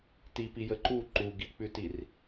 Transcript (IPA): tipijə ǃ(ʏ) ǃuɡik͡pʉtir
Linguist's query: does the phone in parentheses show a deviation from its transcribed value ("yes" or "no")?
yes